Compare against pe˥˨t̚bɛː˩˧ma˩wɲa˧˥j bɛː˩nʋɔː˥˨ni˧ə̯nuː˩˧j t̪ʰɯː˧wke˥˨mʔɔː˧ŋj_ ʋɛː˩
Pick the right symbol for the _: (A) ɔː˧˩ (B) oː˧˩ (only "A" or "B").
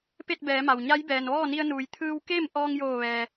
B